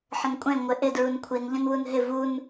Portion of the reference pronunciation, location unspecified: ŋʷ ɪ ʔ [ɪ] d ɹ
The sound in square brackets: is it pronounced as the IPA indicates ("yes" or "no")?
yes